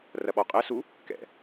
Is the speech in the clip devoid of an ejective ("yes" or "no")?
no